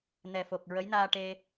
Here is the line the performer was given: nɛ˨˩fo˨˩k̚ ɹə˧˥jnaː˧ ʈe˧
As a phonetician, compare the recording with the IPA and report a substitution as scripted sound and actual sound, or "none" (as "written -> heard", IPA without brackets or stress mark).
none